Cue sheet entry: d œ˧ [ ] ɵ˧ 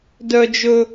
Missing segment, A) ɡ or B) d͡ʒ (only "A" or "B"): B